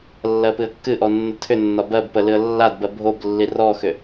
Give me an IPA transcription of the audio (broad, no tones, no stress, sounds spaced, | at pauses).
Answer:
lː ɜ p ɨ ə̯ kː ɨ ʔ ɔ nː ə tʰ ʏ nː ɒ b ɜ b p ə l ɨ ə̯ lː a d b ɜ bʱ o b lː i r ɔ x ʏ